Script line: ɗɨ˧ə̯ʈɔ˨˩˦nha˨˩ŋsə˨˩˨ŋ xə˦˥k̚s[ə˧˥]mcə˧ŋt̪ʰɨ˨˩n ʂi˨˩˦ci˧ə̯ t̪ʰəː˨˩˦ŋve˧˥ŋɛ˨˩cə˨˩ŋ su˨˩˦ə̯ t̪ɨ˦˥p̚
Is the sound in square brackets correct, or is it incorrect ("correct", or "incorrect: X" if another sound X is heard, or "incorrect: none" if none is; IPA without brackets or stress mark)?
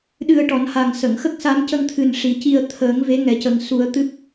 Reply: incorrect: a˧˥